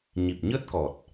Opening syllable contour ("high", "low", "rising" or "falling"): low